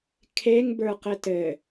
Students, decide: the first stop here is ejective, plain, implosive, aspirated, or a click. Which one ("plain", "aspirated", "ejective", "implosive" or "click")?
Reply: aspirated